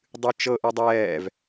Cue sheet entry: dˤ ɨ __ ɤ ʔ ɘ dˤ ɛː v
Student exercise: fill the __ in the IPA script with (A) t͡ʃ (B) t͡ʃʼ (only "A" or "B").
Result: A